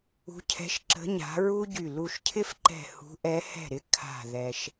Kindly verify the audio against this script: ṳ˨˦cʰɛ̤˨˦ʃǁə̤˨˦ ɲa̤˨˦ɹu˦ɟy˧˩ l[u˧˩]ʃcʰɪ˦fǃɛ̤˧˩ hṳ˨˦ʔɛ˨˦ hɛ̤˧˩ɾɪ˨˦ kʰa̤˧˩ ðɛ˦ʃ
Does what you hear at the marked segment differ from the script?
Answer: no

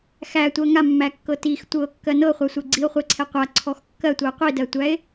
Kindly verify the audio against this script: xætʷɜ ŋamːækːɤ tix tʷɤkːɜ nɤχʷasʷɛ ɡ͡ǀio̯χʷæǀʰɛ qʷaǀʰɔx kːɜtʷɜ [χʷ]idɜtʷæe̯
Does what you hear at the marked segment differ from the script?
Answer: yes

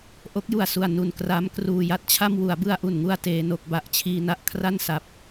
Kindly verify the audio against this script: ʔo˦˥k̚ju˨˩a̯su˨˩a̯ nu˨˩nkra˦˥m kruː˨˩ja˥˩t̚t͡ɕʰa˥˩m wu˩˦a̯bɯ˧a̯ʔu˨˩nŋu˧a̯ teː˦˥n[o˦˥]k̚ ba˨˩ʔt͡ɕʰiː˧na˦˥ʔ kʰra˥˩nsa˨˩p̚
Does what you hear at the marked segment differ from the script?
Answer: no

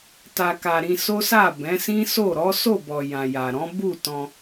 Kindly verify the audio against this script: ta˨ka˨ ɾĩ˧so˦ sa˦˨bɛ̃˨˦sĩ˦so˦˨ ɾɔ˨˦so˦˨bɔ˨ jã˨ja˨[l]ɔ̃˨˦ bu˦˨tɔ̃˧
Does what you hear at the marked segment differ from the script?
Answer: yes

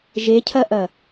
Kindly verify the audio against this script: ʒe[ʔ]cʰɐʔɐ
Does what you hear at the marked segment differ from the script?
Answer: yes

